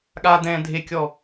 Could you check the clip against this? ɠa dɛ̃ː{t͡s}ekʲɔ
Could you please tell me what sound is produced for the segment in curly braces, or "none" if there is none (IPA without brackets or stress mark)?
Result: dʱ